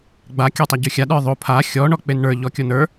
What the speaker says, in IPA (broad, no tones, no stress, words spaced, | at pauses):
ɡ͡ba kʲə˞tˤaɟʉxʲa ɗə˞ðˤo pʰa xʲɔ ɳɔk͡penɳə˞ ʎɔkʲonə˞